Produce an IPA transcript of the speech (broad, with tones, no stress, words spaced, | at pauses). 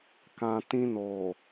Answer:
kã˨ tĩ˧no˨